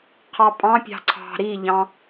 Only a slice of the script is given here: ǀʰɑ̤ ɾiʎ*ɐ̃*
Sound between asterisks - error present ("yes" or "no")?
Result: yes